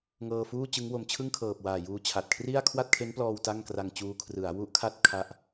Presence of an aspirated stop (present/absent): present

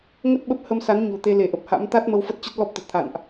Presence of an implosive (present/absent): present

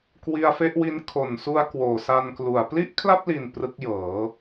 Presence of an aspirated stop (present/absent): present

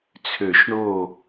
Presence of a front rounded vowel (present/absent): present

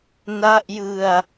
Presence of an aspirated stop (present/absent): absent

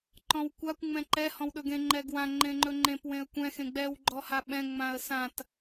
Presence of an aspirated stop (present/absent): absent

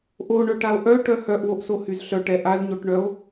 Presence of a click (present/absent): absent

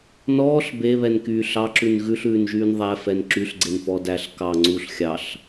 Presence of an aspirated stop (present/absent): absent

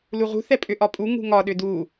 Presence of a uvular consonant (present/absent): present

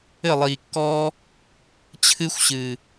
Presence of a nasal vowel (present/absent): absent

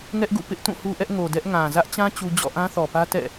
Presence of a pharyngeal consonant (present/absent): absent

